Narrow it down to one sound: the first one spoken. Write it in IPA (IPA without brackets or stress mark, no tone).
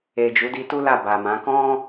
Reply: e